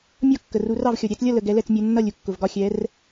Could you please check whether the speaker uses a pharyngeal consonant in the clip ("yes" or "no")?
no